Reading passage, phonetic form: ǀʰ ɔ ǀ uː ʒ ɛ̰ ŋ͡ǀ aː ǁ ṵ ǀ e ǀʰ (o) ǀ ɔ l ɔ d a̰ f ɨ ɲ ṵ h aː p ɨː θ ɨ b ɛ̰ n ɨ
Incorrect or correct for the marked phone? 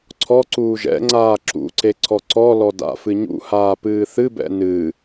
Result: incorrect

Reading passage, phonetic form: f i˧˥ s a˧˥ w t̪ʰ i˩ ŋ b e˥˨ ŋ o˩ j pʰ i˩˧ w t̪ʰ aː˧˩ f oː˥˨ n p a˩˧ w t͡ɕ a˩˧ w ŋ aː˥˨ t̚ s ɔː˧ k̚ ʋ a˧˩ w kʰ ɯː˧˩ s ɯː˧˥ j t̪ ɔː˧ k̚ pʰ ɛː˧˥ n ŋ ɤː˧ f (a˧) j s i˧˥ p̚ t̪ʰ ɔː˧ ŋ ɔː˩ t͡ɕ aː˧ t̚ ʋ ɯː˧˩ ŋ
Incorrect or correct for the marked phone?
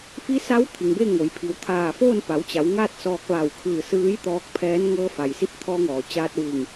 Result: incorrect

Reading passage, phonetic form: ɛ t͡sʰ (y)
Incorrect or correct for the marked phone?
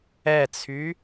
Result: correct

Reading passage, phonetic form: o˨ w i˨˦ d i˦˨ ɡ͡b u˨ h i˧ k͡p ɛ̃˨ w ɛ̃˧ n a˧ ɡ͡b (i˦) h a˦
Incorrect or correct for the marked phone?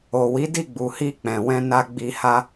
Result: incorrect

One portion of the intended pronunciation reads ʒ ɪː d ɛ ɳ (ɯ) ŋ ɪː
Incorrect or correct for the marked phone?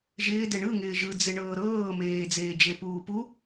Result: correct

